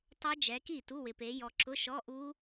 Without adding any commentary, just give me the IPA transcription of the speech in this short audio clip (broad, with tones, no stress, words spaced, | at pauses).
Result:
tˤɛ˦˥d͡ʒɛ˨˦ki˥˩ tu˧˥˧wɪ˨pe˨˦ jɔ˨ǁʊ˧˥˧ʃɔ˧˥˧ ʔu˦˥